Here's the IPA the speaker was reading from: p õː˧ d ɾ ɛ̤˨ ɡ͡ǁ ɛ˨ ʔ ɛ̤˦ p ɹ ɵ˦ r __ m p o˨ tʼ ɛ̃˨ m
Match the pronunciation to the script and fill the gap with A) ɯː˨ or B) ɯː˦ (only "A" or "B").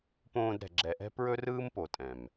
B